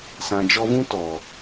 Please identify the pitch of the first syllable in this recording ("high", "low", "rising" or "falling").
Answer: low